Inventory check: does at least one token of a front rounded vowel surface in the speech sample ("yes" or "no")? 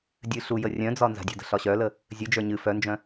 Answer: yes